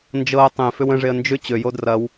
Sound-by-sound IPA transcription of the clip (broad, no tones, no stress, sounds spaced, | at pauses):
n d͡ʒ ɤ ə̯ tˤ ẽ f ʏ w ə̃ ʐ e ə̯ n d͡ʒ ʏ t͡ɕ ø j o d r ɐ w